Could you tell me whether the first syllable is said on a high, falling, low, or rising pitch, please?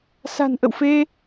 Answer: low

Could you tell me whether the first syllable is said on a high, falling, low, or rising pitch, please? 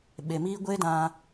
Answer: low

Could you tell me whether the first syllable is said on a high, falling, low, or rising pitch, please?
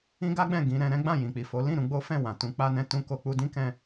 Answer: high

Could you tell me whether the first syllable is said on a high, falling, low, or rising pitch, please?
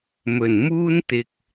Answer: low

